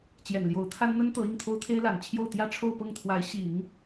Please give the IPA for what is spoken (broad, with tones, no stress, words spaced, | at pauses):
t͡ɕjɛ˨˩nljo˧˥ʊ̯t̪ʰa˥nn̪ə˥n t̪ɤ˧˥ i˥˩ŋt̪ʰo˥ʊ̯t̪ʰe˥ɪ̯la˨˩n t͡ɕʰjo˥˧ʊ̯ t̪jä˥˧ʈ͡ʂʰo˥˧ʊ̯pɤ˥˩ŋt̪ʰwa˧˥ɪ̯ ɕi˨˩˦ŋ